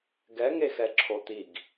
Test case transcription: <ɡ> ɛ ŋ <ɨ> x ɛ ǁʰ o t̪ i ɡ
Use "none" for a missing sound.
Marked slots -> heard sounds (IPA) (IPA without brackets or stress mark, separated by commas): ɡ, e